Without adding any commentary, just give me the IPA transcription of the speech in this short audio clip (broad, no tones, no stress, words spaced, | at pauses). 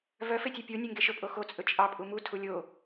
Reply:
vœ fetʲepʲo nʲeŋɡeʃɵ pʼoxo t͡sʼɵt͡ʃʼɑ pʼumu tʰulʲo